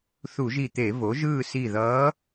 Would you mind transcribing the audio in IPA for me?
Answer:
θ u˧˩˧ ʒ i˧˩ t̪ e˧˩˧ v o˩˥ ʒ ɯː˥˨ s i˧˩ ð ʌː˧˥

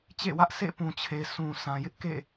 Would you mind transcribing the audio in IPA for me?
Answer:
t͡ɕ ḛ˦˨ w ä˦ ʔ sʰ ḛ˦˨ p ũ˨ t͡ɕʰ e˨ sʰ ũ˨ s ã˨ j ɪ˦ ʔ k ḛ˦˨

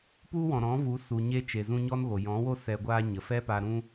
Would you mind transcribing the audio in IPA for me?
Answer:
p u˦ w ɔ̃˨ ɾ ɔ̃˨˦ v u˨˦ s u˨ ɲ e˧ t͡ʃ e˨ z ũ˧ ɲ ɔ˦ n ɣ o˨ j ɔ̃˨˦ w o˦ s ɛ˧ ɡʷ aː˦ ɲ ə˨ f ɛ˦ p a˧ ɾ ũ˦

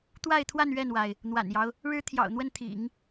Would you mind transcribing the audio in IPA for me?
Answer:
t̪ w a˥˧ ɪ̯ t̪ʰ w a˥˧ n ɥ ɛ˥˩ n w a˩ ɪ̯ | n̪ w a̰˨˩ n j ɑ˦ ʊ̯ | ɻ ɻ̩˥ t̪ʰ j ɑ̰˨˩ ʊ̯ n̪ w ə˥˩ n t̪ʰ ḭ˨˩˦ ŋ

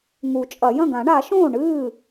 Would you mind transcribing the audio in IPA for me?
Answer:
ŋ u˨˩˦ t͡ʃʼ ɐ˨˩˦ j ɐ̃˥˩ ɡ ã˨˩˦ ɳ a˨˩˦ ʃ õː˥˩ ɳ ɨː˥˩

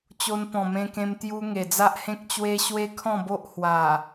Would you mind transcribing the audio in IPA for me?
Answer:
t͡ɕ o˧ n p ɔ̃˨˩ m ẽ˧ k ẽ˧ m t̪ j u˧ ŋ e˨˩ d͡z a˦ ʔ h ẽ˦ k̚ t͡ɕ w e˦ ɕ w e˦ kʰ ɔ̃˥˧ b o˦ ʔ h w a˨˩

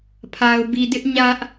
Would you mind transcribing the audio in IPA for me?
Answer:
pʰ a˨ ʊ̯ b i˨ d ɪ˦ ʔ ɲ ä˦ ʔ

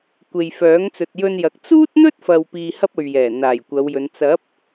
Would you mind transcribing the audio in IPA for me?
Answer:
kʷ e˨ j f œː˨˥ ŋ t͡s ɵ˨ t̚ j ɵ˧ n j ɐ˨ k̚ t͡s uː˥ t̚ n̪ ɵ˥ t̚ f ɐ˨ w p iː˧ h ɐ˥ p̚ ɵ˨ ɥ j ɛː˨˩ n̪ aː˨˩ j kʷ ɐ˨˧ w j ɵ˨˧ n t͡s ɐ˨˥ p̚

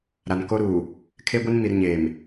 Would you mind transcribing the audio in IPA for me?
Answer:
ɾ a˨ n k o˦ ɾ uː˨ | kʰ e˦ ɡʷ ɪ˦ n m i˨ r ɲ eː˨ m

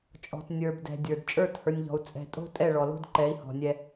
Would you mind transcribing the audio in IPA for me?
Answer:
t͡ʃʼ ɔ̤˨ t nʲ ə˞˨ b d ɛ̤˨ dʲ ə˞˨ d t͡ʃʼ ə˞˦˨ t h ə˞˨ nʲ ʎ ɔ̤˨ u̯ t͡sʼ ɛ̤˨ tʼ o̤˦ tʼ ɛ˦˨ ɭ ɔ˨ l o̤˦ d ǃ ɛ˨˦ i̯ h ɔ̤˨ nʲ ɛ˦

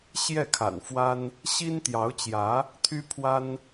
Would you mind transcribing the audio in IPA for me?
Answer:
ɕ j ɛ˥˩ kʰ a̰˨˩ n f w a˥ n | ɕ i˥ n t̪ j ɑ˧˥ ʊ̯ t͡ɕ j ä˧˥ | t̪ʰ y˥ pʰ w a˥ n

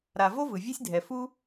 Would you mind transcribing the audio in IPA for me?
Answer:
ɾ a˩ v o˥ v ɯ˩ vʲ ɛ˥ sʲ dʱ ɛ˩ f u˥

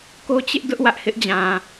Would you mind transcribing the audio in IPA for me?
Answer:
k o˦ t͡ɕ ɪ˦ ʔ d ʊ˦ ʔ w ä˦ ʔ h ɪ˦ ʔ d͡ʑ ã˨

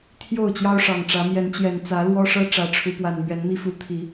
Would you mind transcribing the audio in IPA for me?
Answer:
t̪ʰ j o˥˨ ʊ̯ t͡ɕ j ɑ˦ ʊ̯ ʂ ɑ˨˩ ŋ ʈ͡ʂ ä˨˦ m j ɛ˨˦ n t͡ɕ j ɛ˨˩ n t͡s ä˨˦ l w ɔ˦ ʂ ɤ˦ ʈ͡ʂ ä˨˦ ʈ͡ʂʰ u˨˦ p w a˨˩ n m ɥ ɛ˨˦ n m i˦ f u˨˦ t̪ʰ i˨˦

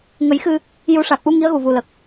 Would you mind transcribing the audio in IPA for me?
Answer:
ŋ ə˨˩˦ j x ɨ˧ | j u˨˩˦ ʂ a˨˩ k̚ ʔ u˧ ŋ i˧˥ ə̯ ɣ u˨˩ v u˨˩ l ə˨˩ k̚

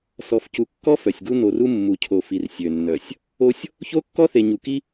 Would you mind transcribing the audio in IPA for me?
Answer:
s ɔ˨ f c u˨ kː ɔ˦ f œ˨ sʲ ɡ u˦ n o˨ r u˦ mː u˨ cʰ o˨ f i˨ r sʲ ø˨ nː œ˨ sʲ | o˦ sʲ | ç o˦ kː ɔ˦ θ e˨ ɲ u˨ k i˦

